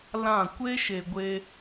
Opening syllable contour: falling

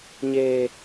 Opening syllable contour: high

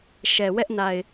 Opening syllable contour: low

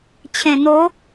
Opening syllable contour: low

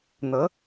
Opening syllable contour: rising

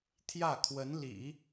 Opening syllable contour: falling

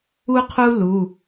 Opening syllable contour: high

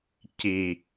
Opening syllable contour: low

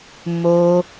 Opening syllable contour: high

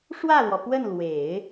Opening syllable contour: falling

